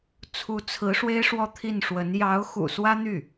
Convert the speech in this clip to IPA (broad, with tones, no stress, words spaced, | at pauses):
t͡sʰu˧˥t͡sʰɹ̩˧˥ ʂwe˥ɪ̯ʂwɔ˥˧t̪ʰi˥˩nʂwə˧˥n jɑ˧˥ʊ̯xṵ˨˩ swä˥n̪y˥˩